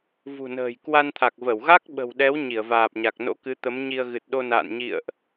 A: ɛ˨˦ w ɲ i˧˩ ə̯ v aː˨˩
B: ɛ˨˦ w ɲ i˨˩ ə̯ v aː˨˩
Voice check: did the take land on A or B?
A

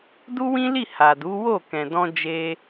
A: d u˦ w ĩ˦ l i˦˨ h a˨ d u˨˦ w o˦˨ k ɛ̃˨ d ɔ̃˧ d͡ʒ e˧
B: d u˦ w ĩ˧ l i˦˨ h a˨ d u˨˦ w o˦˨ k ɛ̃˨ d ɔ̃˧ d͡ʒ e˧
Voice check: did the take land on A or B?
A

